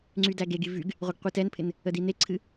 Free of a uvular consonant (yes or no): no